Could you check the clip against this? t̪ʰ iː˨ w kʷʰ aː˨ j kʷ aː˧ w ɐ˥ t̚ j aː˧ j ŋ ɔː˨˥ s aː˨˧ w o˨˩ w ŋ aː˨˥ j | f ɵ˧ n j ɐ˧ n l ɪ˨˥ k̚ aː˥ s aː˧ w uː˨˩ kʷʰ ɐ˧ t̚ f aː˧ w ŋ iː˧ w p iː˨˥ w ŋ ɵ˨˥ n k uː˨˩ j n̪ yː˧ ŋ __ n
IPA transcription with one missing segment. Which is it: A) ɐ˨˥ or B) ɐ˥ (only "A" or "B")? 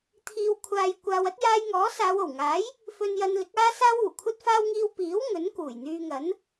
A